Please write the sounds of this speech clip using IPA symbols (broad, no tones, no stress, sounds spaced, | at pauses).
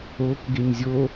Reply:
o k ɡ e ɲ zʲ o